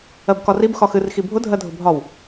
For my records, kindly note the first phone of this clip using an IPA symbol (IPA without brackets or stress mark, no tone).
ɜ